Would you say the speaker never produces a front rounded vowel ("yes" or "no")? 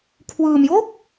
yes